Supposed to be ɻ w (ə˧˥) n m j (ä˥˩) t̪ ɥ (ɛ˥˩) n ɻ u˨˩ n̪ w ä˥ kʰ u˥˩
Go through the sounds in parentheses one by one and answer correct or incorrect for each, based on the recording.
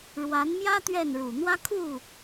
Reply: incorrect: a˧˥, incorrect: ä˥, correct

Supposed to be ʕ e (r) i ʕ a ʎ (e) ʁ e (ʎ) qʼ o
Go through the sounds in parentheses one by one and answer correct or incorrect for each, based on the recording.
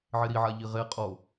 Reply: incorrect: ɾ, incorrect: i, incorrect: none

